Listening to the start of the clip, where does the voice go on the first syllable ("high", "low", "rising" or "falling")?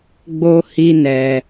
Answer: high